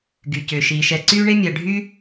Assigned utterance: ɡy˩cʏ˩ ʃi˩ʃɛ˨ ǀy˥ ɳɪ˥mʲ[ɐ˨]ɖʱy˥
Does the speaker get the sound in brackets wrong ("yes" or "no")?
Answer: no